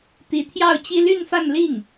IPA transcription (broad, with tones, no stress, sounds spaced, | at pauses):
t̪ i˧˥ t̪ʰ j ɑ˥˩ ʊ̯ t͡ɕ i˥ l y˥˧ n f a˥˧ n l i˥˩ ŋ